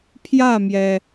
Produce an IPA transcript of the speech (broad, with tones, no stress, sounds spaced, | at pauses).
pʰ j ä˥˩ m j ɛ˩